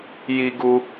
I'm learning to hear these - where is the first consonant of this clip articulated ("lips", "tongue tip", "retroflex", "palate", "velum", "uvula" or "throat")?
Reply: palate